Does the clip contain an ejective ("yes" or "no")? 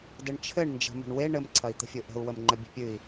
no